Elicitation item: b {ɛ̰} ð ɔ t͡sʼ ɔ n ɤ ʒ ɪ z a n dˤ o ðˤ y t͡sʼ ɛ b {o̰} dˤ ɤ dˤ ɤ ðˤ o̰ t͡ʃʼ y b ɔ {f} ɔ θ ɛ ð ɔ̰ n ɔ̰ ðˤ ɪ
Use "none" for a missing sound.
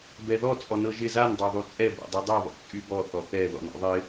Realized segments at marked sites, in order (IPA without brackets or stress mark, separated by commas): ɛ, o̰, θ